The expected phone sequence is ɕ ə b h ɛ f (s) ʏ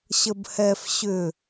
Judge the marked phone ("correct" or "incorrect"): incorrect